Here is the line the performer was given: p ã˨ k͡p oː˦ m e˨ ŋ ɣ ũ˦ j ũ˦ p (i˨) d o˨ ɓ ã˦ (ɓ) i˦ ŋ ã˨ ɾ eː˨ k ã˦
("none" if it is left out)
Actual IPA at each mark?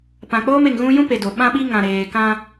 e˨, ɓ

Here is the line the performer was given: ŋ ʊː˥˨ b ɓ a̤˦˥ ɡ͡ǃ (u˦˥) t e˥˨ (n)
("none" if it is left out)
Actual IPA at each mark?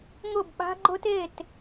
ʊ˦˥, t

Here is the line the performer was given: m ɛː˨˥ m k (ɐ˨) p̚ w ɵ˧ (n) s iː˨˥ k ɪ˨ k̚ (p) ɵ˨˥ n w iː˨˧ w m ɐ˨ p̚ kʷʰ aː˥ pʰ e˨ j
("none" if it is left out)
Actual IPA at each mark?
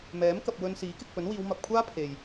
ɐ˨, n, p

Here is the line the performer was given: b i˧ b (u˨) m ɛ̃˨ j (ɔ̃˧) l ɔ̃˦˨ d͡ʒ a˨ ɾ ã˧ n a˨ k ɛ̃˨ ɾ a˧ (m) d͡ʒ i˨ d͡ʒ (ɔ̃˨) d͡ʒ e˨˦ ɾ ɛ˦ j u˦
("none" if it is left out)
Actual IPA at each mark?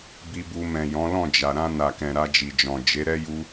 u˧, ɔ̃˨˦, none, ɔ̃˨

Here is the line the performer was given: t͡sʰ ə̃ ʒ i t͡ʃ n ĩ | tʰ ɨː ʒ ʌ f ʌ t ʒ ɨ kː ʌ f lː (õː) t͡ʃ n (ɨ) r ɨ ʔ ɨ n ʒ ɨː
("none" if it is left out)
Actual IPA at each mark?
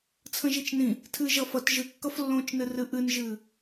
õː, ɨ

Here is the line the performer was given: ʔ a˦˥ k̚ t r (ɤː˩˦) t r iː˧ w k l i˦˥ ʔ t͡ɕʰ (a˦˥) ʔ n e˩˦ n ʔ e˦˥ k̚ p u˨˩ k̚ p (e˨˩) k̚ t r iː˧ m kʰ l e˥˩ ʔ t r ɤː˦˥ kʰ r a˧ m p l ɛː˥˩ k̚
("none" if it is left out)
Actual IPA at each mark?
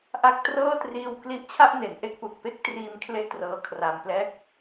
ɤː˥˩, a˥˩, e˥˩

